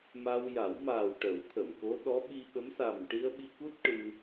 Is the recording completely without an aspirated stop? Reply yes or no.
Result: no